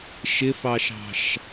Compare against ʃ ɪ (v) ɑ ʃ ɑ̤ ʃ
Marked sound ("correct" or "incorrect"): incorrect